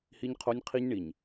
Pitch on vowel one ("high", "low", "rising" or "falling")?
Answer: high